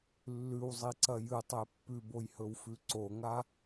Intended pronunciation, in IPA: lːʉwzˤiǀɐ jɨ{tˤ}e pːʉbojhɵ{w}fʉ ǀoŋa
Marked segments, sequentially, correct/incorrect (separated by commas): correct, correct